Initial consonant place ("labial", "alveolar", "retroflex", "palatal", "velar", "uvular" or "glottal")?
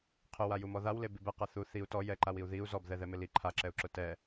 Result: uvular